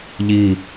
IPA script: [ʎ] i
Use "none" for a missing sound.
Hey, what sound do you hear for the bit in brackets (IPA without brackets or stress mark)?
ʎ